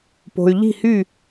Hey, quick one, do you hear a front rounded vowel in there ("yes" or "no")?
yes